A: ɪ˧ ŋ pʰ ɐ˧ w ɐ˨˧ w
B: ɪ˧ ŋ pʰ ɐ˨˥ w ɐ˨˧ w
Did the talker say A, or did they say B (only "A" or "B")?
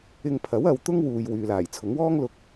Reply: B